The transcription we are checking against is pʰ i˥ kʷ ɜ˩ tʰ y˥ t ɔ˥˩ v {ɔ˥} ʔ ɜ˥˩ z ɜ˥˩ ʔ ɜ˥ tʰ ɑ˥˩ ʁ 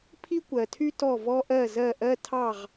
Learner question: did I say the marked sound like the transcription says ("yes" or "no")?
yes